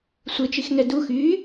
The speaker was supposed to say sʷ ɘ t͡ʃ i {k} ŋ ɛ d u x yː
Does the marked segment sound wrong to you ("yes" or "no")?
yes